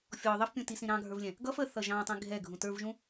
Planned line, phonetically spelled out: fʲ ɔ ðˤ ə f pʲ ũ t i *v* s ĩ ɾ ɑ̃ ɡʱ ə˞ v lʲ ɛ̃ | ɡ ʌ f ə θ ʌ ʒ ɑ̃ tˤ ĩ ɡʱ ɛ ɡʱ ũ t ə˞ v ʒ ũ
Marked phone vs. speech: incorrect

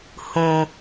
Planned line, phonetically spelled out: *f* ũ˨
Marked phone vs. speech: incorrect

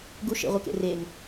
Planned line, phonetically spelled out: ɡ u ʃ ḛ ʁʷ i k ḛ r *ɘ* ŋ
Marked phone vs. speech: incorrect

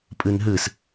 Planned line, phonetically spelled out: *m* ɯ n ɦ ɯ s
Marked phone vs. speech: incorrect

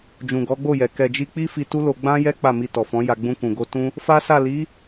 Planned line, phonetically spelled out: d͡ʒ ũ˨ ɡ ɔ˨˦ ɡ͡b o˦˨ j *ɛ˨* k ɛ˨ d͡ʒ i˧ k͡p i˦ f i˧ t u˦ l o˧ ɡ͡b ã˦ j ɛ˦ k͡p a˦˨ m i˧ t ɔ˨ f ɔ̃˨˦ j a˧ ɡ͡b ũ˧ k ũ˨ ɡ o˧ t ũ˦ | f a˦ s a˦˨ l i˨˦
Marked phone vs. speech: correct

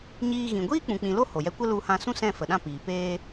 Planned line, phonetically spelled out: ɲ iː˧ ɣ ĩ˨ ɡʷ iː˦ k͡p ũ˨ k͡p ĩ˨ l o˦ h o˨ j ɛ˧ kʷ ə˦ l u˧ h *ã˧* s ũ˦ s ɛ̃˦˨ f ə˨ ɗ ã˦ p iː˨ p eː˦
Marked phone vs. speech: correct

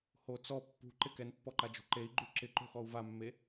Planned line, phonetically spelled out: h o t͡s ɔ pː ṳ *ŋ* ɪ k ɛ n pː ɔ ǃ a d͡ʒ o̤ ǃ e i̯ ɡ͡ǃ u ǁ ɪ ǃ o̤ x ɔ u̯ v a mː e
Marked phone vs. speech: incorrect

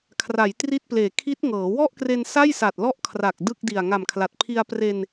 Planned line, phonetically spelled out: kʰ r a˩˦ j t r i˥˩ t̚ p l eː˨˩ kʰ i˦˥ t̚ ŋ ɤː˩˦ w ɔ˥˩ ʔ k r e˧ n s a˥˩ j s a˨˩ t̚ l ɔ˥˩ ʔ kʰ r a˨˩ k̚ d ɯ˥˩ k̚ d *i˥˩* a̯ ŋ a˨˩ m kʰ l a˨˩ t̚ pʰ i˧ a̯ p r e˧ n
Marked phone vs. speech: incorrect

